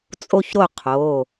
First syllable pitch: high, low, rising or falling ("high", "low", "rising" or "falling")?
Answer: high